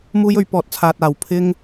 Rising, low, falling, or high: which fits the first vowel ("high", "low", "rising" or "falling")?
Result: high